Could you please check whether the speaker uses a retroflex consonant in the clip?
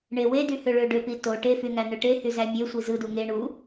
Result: yes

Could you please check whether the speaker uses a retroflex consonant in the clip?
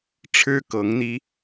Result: yes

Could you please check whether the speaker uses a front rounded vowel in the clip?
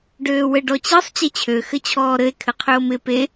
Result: yes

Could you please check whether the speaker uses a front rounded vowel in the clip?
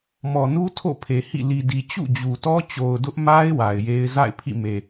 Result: no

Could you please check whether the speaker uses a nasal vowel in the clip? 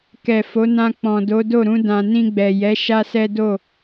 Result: yes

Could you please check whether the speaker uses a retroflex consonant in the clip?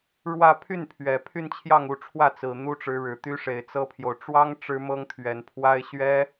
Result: yes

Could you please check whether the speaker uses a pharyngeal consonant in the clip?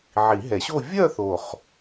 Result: yes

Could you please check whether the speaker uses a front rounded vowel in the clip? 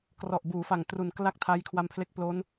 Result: no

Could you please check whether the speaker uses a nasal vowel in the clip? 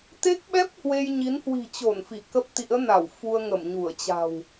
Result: no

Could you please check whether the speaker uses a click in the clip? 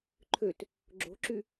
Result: yes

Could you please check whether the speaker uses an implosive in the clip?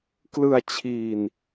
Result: no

